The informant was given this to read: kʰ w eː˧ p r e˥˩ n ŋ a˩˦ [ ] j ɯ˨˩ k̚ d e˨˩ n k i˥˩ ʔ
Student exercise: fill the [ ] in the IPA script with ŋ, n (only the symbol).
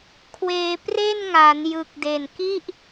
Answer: n